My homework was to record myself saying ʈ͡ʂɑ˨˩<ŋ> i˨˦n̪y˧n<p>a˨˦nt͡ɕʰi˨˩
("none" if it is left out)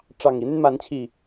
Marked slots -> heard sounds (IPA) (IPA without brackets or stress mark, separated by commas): ŋ, m